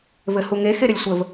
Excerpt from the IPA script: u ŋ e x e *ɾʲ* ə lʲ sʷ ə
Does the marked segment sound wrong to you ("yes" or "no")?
yes